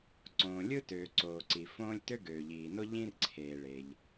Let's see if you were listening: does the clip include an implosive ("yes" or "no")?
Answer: no